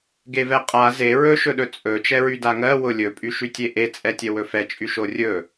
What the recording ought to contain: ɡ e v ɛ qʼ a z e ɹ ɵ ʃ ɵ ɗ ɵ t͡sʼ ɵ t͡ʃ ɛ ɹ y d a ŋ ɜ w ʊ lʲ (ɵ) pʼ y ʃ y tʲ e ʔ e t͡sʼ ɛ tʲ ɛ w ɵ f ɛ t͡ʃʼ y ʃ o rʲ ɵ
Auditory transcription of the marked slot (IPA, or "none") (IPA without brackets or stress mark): ɵ